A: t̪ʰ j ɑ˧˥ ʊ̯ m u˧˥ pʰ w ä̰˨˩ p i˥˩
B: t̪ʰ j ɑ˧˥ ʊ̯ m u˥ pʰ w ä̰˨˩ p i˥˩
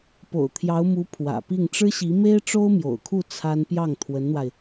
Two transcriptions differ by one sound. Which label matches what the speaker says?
A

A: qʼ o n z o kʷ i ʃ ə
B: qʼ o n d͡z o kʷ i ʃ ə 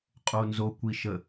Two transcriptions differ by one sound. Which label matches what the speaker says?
A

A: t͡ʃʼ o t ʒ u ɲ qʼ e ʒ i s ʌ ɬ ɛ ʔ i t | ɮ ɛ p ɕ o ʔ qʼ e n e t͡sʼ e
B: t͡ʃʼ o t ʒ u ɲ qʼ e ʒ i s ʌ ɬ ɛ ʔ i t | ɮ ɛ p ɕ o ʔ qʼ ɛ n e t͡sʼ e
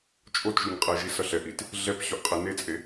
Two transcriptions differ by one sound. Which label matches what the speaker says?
A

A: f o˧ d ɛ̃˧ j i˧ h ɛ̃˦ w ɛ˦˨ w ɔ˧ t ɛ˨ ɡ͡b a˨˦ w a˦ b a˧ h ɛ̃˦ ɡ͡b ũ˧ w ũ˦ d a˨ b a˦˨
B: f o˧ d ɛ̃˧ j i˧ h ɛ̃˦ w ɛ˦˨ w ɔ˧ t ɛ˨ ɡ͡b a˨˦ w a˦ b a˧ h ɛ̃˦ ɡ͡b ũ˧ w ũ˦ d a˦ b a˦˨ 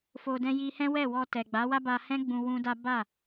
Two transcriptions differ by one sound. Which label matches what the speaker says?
B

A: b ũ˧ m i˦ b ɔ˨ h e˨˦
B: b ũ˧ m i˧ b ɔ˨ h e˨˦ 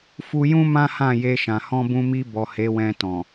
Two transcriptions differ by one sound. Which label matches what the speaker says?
B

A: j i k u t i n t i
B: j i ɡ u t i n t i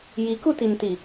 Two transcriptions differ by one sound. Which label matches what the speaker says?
A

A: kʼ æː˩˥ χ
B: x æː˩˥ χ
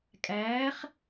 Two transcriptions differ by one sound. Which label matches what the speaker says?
A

